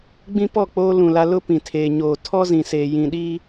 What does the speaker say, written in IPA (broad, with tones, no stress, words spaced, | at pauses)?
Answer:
ɡ͡bĩ˦pɔ˦˨k͡poː˦ lũ˨la˦ lʊ˦pĩ˨tʰeː˨ ɲoː˨tʰɔ˦zĩ˨seː˨ jĩ˨ɗi˦